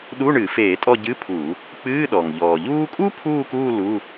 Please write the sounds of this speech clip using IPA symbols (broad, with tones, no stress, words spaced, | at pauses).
ɗu˧˥˧ɳɨ˧˩˧feː˧˩˧tʼɔ˦˨ ɟɨ˧˥˧pʰu˧˩˧ | k͡pɨː˧˥˧ɗɔ˩ŋ ʎɔː˩ʎuː˥ kʼu˥pʰuː˦˨kuː˦˨ lu˧˥˧